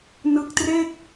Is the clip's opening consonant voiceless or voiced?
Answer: voiced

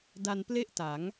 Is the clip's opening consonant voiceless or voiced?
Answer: voiced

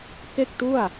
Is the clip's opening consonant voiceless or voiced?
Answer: voiceless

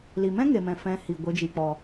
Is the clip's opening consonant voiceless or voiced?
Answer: voiced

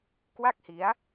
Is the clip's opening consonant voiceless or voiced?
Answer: voiceless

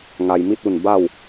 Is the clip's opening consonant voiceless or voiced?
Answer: voiced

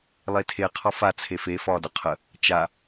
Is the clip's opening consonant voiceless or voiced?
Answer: voiced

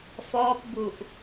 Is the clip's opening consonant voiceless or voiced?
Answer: voiceless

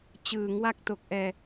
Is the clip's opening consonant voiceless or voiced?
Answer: voiceless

